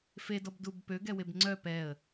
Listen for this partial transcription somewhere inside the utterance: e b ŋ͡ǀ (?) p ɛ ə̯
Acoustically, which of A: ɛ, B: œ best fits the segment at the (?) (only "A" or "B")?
B